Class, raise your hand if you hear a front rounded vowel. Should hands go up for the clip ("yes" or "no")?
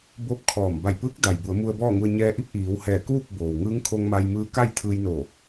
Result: no